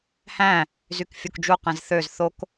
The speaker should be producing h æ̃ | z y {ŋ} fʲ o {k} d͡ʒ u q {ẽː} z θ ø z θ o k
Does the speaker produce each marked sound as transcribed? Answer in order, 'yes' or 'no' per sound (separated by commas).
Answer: no, yes, no